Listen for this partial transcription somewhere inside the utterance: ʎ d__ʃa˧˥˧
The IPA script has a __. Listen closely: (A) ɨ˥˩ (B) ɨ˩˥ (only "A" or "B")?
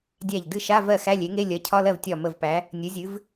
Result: A